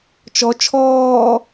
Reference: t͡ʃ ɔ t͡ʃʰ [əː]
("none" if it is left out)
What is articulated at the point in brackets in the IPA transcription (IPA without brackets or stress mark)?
ɔː